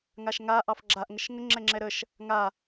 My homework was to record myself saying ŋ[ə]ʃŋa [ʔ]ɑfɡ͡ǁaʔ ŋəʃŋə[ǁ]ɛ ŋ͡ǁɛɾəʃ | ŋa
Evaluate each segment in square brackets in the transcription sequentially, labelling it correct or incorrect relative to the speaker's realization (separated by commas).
incorrect, correct, incorrect